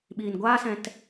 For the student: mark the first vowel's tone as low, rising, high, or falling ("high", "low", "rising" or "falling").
low